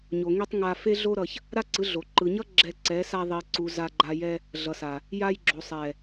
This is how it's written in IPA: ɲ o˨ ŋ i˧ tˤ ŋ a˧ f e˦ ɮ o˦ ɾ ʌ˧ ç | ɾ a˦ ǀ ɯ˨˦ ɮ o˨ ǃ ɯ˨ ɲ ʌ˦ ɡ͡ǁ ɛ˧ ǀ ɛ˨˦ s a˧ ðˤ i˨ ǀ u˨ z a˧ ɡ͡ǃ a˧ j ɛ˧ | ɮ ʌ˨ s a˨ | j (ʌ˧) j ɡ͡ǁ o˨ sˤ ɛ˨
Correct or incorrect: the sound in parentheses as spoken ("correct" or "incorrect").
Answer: incorrect